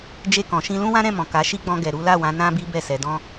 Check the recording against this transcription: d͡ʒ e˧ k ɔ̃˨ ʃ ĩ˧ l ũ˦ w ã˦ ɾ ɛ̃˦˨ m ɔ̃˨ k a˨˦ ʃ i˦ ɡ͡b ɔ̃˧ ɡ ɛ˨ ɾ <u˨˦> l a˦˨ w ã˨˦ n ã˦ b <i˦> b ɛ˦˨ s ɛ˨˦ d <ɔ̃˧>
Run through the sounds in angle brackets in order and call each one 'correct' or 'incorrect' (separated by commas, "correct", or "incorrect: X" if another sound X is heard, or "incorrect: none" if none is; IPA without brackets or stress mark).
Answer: correct, correct, incorrect: ɔ̃˦